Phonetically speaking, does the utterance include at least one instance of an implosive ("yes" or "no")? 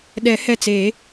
yes